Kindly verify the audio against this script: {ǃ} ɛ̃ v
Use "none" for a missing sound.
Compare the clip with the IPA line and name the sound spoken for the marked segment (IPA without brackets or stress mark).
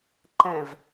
ǃ